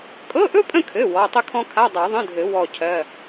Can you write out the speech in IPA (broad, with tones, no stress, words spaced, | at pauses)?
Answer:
kʼɤ˧˥˧ʔɵ˥pʼə̃˥˨kʰɘ˩˧˩ wɔ˩˧˩tˤə˥kʰɔ̃˥ kʰa˧˥˧dˤa˨˩˦ðˤə̃˧˥˧dʱɘ˨˩˦ wɔ˥˨cʰɜ˧˥˧